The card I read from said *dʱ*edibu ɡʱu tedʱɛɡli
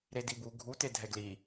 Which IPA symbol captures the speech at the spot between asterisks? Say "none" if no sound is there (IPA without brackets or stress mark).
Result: ɾ